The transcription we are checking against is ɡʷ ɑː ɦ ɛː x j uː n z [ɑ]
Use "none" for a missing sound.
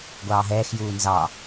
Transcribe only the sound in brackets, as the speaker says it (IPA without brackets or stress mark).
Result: ɑ